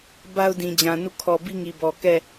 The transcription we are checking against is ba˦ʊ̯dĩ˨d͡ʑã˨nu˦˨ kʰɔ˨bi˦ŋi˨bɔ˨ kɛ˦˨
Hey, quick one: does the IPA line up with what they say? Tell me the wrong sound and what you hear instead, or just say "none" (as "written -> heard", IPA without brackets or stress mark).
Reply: none